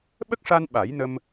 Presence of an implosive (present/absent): present